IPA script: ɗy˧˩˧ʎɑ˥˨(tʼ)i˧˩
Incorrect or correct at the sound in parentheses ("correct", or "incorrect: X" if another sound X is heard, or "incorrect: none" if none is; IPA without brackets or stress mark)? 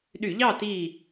incorrect: t